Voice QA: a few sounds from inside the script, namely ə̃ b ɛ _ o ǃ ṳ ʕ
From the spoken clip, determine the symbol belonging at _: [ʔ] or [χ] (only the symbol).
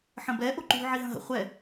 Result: ʔ